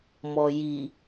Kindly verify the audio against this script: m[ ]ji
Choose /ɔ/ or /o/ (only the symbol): ɔ